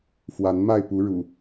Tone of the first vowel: rising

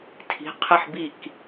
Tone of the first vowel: rising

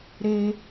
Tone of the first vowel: high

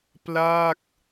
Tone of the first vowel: falling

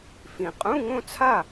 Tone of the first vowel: low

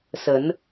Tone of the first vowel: rising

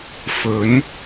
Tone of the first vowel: rising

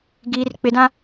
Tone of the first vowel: high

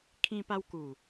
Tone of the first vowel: high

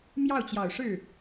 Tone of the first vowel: falling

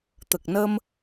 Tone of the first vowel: low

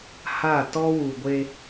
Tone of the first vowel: falling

